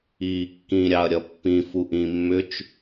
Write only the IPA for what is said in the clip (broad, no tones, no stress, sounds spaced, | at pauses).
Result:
iː kː ĩ ɾʲ ɑ ɐ̯ ɾʲ ʌ pː ĩ f u ʔ ĩ mː ʏ t͡ʃ